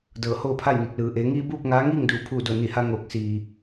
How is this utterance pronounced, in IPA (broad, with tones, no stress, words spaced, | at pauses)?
dɤː˧˩hoː˥˨pʰa˥˨jni˧˩k̚ lɯː˩ʔeː˩˧ŋiː˧ buː˥˨p̚ŋaː˧˥ŋiː˥˨ŋ duː˧˩ pʰuː˧˩do˧˩ ni˧˩ha˧ ŋoː˧˩k̚ siː˩